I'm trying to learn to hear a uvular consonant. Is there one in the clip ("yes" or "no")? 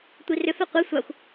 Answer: yes